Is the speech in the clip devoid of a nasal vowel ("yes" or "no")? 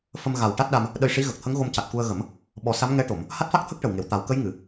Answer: yes